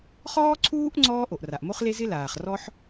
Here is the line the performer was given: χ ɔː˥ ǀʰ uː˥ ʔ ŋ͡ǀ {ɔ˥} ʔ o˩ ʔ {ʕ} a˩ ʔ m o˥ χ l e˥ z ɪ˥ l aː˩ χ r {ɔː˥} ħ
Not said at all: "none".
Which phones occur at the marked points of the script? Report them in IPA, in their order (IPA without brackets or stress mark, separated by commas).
ɔː˥, r, ɔ˥